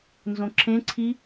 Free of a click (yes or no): no